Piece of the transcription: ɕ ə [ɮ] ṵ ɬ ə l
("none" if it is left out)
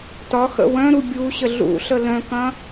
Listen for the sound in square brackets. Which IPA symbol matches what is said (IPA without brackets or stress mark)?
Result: ɮ